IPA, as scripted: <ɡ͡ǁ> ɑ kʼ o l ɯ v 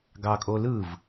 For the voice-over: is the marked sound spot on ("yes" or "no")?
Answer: no